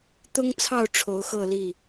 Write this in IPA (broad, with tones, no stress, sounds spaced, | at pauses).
t̪ ʊ˦ ŋ t͡sʰ ɑ˥˨ ʊ̯ ʈ͡ʂʰ o˨˦ ʊ̯ x ɤ˥˨ l i˥˨